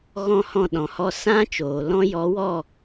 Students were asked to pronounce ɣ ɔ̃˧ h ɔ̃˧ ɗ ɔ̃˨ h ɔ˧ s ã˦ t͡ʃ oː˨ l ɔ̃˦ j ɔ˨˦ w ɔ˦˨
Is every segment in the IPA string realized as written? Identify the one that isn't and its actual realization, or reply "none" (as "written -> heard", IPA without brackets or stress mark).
none